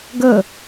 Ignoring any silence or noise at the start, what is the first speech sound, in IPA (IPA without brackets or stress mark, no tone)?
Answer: ɡ